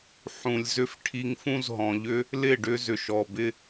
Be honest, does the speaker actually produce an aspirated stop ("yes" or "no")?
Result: yes